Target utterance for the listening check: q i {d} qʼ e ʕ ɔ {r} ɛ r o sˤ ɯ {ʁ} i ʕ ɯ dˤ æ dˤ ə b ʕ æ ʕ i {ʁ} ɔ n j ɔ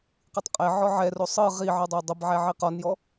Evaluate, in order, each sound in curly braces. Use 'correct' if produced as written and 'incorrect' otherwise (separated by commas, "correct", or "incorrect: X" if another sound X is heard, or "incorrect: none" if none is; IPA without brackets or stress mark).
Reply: incorrect: tˤ, incorrect: ʕ, correct, incorrect: q